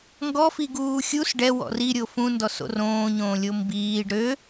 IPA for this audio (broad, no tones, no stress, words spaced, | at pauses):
ŋɡɔ fiɡuːxʲus ɖɛ wɔ̰ri ɾʲofũ ndɔso̰rõː ɲõːlʲombiːɖ ɾø